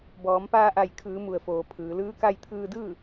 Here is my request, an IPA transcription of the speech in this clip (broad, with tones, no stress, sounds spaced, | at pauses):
b ɔː˩˧ m p aː˧ ʔ a˧˩ j kʰ ɯː˩˧ m u˩ ə̯ f oː˩ pʰ ɯː˩˧ l ɯː˧˥ k a˧ j t̪ʰ ɯː˧ d ɯː˥˨